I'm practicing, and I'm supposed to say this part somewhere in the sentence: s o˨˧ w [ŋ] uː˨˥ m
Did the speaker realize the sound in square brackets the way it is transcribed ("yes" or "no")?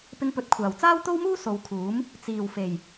no